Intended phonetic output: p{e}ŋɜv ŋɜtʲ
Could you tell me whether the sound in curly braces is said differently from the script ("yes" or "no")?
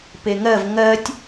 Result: no